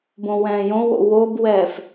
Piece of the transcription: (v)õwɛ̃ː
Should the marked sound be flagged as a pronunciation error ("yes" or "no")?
yes